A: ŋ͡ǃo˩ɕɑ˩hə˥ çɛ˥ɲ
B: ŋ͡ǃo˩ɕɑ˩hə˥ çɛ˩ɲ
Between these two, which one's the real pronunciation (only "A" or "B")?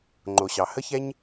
A